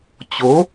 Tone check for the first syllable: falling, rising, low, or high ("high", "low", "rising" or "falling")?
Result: rising